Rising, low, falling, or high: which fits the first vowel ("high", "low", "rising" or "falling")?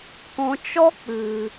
low